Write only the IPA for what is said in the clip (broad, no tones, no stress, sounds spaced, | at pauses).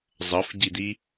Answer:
zˤ ʌ f ɟ i d̪ i